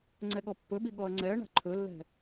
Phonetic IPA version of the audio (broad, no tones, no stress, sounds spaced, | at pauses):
ŋ͡ǀ ɛ ɠ ɔ pː ɵ ɓ i ɠ ɔ ɐ̯ ŋ͡ǀ ɛ ɐ̯ ɳ a̤ ǃʰ ɵ lː ɛ̤